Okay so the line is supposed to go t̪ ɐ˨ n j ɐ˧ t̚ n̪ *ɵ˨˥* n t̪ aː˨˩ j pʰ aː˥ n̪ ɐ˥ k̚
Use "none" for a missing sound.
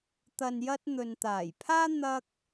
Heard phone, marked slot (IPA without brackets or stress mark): ɵ˨